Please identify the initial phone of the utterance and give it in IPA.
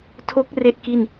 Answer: tʰ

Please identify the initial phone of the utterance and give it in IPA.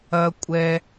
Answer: ɐ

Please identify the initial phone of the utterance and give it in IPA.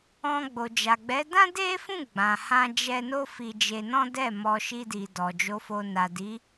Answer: ɔ̃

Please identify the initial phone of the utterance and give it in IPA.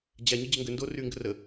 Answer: d͡ʑ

